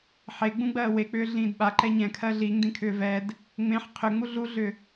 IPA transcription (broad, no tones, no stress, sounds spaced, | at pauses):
ħ e ɡ͡b ũ ɡ͡b ɜː w e k͡p ʏː ɮ ĩː d ɓ a ǃ ɛ ɲ ɛ̃ kʰ ɜ ɮ i ŋ d ĩ kʰ ʏː v ɛ d | ŋ͡m ẽ ħ qʰ ʏ ŋ͡m u ɮ u ɮ ʏ